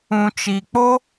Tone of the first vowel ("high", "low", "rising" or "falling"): low